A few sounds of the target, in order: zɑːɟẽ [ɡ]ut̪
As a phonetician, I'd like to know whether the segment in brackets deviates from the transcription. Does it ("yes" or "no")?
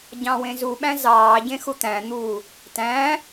yes